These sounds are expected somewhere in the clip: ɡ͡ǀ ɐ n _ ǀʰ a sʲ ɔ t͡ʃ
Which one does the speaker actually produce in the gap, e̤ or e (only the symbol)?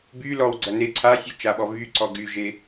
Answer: e